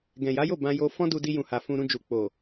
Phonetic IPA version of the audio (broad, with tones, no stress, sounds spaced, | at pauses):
ɡ ɛ̃˨ j a˨˦ j o˦˨ b ã˧ j o˧ f ɔ̃˦ d u˧ d i˧ j ũ˨ h a˨ f ũ˧ ɾ ũ˧ d͡ʒ u˨ k͡p o˨